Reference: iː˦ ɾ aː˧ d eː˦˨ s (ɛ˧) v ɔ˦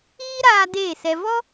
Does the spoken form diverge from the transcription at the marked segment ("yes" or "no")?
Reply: no